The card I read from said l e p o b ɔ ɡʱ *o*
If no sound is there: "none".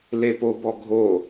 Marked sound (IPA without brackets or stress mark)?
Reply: o